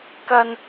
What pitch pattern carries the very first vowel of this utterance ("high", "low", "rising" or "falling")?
low